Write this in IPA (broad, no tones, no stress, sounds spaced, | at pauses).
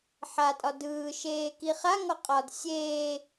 ħ a tʼ ɒ d ɯː ʃ eː k i χ a ŋ ɔ qʼ ɒ d sʲ eː